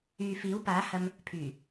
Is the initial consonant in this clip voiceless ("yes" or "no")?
yes